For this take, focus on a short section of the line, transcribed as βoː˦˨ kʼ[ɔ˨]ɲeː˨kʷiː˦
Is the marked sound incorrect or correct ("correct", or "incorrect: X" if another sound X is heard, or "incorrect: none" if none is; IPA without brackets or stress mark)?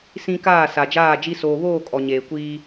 correct